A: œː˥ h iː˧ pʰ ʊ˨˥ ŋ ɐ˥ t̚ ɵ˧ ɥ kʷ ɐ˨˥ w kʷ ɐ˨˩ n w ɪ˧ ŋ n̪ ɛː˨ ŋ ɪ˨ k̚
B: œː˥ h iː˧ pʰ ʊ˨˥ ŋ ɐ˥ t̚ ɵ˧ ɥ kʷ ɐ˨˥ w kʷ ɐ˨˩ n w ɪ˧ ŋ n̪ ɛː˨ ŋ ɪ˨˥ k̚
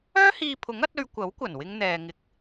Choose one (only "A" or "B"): B